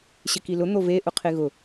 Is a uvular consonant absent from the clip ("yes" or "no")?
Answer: no